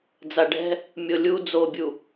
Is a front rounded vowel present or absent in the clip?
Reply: absent